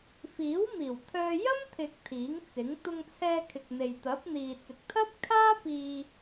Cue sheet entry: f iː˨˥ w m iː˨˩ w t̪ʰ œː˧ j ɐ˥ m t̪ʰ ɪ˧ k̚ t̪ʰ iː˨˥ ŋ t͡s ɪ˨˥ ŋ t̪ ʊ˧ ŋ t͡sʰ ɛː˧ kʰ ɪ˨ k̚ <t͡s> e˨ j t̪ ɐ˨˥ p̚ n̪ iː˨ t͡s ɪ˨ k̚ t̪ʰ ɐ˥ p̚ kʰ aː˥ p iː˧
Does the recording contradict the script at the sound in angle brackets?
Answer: yes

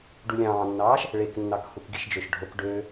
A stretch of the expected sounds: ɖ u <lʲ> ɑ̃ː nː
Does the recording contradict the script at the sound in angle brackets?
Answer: no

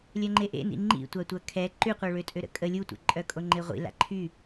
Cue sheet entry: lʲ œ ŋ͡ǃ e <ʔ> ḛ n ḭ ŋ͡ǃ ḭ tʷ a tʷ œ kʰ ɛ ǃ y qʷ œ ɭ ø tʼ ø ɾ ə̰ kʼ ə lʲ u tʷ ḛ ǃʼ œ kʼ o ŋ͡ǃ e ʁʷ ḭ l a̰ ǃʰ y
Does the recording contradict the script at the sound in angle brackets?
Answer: no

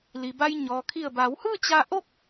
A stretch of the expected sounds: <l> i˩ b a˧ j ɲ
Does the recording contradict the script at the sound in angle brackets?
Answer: no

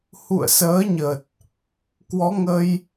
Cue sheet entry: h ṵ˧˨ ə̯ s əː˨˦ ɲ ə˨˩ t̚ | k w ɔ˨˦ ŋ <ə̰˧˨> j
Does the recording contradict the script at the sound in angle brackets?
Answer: yes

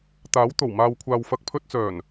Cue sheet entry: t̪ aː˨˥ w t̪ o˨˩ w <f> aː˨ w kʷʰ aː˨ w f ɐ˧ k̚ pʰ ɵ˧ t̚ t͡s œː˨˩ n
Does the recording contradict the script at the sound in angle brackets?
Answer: yes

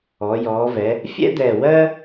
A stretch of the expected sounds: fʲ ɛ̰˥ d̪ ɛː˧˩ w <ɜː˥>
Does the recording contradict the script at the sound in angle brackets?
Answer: no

